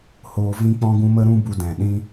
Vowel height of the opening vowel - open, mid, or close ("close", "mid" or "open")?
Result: mid